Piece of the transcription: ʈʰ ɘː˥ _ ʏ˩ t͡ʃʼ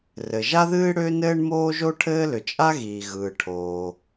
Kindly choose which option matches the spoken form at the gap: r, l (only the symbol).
l